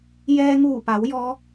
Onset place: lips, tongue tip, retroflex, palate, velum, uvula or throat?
palate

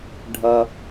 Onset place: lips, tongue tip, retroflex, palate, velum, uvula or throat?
retroflex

